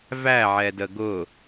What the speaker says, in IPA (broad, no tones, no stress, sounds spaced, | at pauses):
v æ ʕ ɛ d ə ɡ ʊ